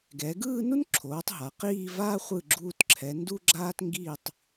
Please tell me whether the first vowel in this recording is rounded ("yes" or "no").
no